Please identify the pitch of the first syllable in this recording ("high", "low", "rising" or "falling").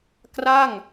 falling